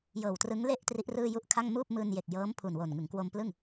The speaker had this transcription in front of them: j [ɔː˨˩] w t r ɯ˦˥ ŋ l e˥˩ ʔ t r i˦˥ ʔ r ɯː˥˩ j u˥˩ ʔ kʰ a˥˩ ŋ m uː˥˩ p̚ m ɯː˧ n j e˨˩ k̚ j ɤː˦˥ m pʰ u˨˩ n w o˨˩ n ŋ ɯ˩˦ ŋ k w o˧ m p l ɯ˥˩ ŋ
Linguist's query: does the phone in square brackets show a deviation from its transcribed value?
yes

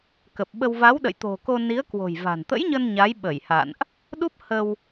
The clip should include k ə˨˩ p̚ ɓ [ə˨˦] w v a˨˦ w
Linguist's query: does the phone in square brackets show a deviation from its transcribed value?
yes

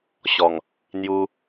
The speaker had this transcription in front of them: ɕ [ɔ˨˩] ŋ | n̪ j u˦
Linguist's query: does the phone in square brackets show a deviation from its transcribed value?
no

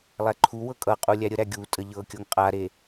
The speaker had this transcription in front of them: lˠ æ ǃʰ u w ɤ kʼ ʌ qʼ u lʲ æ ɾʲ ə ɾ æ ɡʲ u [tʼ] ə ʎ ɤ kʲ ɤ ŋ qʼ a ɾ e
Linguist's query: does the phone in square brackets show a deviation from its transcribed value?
no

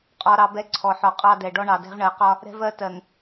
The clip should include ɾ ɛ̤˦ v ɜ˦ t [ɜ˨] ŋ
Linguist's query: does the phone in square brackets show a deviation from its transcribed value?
no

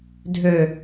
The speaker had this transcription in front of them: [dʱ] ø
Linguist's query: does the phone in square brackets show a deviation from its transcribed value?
no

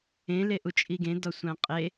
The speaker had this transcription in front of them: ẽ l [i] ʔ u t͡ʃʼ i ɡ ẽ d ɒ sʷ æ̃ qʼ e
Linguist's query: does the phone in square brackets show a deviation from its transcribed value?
yes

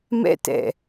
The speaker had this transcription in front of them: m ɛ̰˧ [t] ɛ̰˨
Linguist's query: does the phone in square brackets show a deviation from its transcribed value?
no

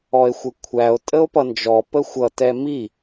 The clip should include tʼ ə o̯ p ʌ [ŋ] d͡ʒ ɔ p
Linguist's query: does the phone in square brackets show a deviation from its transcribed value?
yes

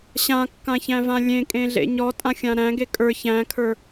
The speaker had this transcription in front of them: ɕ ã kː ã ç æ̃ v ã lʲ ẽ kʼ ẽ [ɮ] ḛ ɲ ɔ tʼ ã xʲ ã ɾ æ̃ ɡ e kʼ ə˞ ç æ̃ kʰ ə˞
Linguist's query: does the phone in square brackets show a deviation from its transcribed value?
no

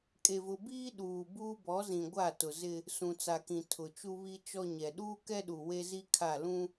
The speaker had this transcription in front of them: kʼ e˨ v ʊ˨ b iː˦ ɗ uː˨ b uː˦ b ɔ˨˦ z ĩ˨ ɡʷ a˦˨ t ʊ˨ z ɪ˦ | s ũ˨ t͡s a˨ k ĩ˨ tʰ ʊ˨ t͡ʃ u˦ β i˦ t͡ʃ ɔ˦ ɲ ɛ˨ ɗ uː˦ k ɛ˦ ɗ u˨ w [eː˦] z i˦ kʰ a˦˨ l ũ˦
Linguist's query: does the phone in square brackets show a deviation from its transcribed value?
yes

